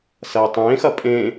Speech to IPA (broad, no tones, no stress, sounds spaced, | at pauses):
s ɐː tˤ ẽː x ɐ pʼ ẽ